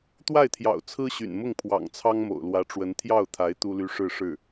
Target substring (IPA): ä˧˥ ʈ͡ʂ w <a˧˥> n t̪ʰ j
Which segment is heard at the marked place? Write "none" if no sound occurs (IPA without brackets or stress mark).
ə˧˥